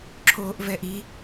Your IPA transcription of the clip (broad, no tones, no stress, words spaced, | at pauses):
ǁʰoːʔvɛʔi